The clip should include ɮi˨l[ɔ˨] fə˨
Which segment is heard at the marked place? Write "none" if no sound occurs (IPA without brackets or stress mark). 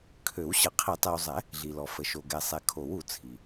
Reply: ɔ˨